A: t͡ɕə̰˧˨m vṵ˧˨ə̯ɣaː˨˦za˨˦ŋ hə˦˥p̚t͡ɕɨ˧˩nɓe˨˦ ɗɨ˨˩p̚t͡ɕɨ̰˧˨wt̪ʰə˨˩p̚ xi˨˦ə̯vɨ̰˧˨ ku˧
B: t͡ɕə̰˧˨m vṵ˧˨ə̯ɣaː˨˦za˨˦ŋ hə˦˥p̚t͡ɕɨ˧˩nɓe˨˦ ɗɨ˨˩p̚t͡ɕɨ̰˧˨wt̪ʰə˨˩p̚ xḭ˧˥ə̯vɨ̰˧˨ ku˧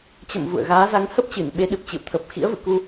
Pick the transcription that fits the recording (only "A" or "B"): B